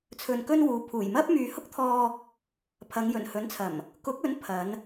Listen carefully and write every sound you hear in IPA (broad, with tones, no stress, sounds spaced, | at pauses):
t͡sʰ ɵ˧ n k ɵ˥ n w uː˨˧ pʰ uː˨˩ j m ɐ˥ p̚ m yː˨ h ʊ˥ k̚ t̪ʰ ɔː˧ | pʰ ɐ˨˧ ŋ j ɵ˨˩ n h ɵ˨˥ n t͡sʰ ɐ˨˩ m | k ʊ˨˥ k̚ ɵ˨˥ n pʰ ɐ˨˧ n